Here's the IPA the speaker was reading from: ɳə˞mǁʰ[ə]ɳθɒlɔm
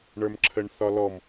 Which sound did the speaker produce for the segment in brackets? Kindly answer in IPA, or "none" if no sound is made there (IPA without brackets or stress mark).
ə